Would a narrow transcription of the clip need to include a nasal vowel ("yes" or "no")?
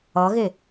no